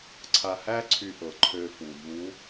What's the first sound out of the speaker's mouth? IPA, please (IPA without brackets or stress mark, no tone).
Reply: ǀʰ